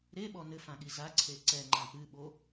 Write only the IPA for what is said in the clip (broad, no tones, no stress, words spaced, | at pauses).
ɾeɓɔ nɘfãɠi zaǀʰe ǀɛŋ͡ǃã pɨɓo